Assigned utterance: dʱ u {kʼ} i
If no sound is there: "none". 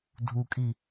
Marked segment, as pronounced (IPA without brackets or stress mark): kʼ